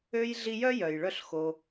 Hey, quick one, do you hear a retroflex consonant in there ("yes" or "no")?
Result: yes